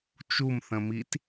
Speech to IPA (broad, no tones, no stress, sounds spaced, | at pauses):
t͡ʃ u m θ ə̃ m i t